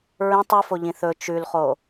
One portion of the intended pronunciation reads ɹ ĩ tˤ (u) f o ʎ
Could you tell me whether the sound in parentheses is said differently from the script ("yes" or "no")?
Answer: no